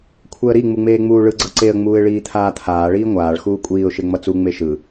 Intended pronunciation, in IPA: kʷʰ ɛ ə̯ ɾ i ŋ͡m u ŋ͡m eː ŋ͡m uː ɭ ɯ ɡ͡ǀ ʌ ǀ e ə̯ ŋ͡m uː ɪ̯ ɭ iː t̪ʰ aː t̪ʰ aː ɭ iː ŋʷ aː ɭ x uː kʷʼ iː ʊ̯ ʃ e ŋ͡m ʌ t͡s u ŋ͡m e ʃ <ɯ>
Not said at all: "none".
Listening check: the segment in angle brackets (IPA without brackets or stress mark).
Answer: ɯ